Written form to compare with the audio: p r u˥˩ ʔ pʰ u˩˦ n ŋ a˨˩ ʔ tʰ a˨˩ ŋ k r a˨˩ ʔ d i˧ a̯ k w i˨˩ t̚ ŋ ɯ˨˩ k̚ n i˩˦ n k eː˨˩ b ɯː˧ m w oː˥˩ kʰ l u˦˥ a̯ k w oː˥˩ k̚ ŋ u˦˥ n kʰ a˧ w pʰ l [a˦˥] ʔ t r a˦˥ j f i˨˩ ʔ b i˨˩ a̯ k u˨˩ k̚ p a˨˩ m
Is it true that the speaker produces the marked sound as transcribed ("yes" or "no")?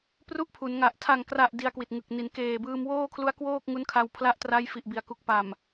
yes